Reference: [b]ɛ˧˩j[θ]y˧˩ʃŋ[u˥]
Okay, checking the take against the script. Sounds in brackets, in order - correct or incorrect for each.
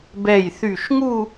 correct, correct, incorrect: u˥˧

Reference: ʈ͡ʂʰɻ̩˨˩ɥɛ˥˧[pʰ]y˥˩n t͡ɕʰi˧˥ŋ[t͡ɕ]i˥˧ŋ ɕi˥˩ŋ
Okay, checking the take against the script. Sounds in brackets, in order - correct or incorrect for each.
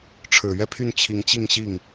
correct, correct

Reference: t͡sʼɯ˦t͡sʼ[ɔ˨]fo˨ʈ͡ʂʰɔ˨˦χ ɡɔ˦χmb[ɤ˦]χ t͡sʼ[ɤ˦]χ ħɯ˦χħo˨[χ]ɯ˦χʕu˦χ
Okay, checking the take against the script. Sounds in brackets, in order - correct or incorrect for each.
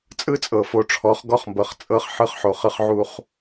incorrect: ɤ˨, incorrect: ɤ˨, correct, correct

